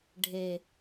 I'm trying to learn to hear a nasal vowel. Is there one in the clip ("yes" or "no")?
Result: no